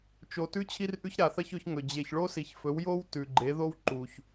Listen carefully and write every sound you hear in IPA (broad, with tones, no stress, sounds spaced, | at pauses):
t͡ʃ o˨ t ʉ˥ t͡ɕʰ i˥ r ʔ ʉ˥ ç ɾ a˨ θ ɐ˥ ç ɵ˨˥ ç ŋ ɵ˨ d͡ʑ e˨ ç ɭ o˥ s i˨ ç f ɵ˨˥ w j o˥ w t ʉ˨ ɡ͡ǃ e˨˥ ð o˥ w ǃ u˨ ç